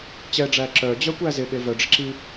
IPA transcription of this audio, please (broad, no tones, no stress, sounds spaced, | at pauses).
t͡ɕ ɛ ɖ͡ʐ æ ǁ œ d͡ʑ œ kʷ æ z ɪ ɠ e v œ ɖ͡ʐ ɪ ǁ i